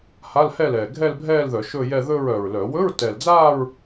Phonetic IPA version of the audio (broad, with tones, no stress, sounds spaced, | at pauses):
h a˧˥˧ l h ɛ˥˧ l ɛː˨˩ ɡʱ ɛ˥˧ l bʱ ɛː˥˧ l ð œ˧˩˧ ʃ ɵ˥˧ j ɛ˥˧ ð ɵ˥˧ ɹ œ˨˩ ɹ l œ˧˩˧ w ɵ˧˥˧ ɹ t ɛ˨˩ l d͡z aː˥˧ ɹ